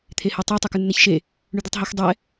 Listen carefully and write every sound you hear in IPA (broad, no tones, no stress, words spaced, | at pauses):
t̪ʰehɛtˤɛ tˤɛkʉnːɛçʃe | ɳʉd̪ʉtˤɦɤx dˤɛ